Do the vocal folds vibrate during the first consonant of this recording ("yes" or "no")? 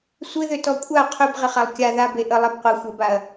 no